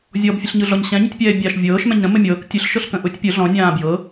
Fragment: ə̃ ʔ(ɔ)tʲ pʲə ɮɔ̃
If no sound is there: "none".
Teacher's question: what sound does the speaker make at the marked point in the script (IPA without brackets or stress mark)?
ʊ